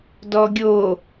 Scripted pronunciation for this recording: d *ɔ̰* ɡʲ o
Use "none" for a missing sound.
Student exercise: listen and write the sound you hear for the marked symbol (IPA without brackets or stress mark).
ɔ